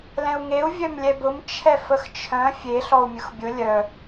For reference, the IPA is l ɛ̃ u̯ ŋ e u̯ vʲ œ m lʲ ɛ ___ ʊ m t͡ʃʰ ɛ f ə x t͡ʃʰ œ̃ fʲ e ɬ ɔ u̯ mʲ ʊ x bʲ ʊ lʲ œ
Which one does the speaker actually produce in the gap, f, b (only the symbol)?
b